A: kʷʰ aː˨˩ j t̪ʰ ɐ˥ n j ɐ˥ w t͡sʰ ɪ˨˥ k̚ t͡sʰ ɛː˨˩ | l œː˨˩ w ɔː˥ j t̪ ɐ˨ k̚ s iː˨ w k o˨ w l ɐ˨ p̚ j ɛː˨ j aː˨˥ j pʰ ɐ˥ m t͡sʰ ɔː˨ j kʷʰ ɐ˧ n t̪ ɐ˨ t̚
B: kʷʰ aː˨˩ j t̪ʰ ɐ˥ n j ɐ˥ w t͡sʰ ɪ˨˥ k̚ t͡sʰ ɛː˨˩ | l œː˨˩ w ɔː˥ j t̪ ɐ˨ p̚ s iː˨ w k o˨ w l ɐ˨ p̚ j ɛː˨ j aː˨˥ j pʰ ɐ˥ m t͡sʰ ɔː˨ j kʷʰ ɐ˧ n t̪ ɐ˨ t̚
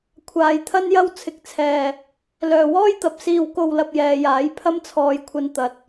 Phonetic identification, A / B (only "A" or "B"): B